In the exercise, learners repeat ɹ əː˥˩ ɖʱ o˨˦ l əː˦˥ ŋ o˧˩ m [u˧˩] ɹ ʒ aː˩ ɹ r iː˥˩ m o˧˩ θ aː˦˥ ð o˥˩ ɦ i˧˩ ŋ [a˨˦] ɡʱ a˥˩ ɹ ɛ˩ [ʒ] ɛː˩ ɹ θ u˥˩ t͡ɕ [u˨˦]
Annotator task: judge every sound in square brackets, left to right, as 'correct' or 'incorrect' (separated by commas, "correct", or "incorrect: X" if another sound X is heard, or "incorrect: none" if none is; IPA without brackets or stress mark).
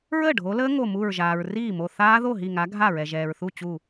correct, correct, correct, incorrect: u˧˩